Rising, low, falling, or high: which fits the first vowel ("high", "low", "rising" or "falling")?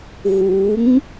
rising